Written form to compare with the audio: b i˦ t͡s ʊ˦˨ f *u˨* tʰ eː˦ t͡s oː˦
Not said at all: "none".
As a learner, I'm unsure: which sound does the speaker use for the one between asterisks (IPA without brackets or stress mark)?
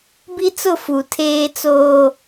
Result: u˨